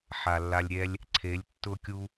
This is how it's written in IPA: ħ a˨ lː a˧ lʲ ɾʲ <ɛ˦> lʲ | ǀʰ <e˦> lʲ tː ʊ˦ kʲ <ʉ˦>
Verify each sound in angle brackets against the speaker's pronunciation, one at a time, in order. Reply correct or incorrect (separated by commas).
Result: correct, incorrect, incorrect